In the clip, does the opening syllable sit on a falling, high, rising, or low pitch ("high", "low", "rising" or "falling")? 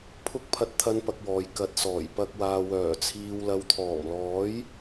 high